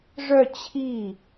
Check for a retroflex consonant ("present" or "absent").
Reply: present